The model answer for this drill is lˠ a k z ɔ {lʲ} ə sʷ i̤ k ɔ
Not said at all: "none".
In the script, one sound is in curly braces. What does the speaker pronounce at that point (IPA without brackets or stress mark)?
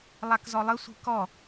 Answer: lˠ